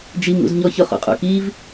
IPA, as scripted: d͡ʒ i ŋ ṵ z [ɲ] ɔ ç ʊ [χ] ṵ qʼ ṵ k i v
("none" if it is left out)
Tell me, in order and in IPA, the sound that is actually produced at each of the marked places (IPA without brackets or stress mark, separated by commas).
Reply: ɲ, χ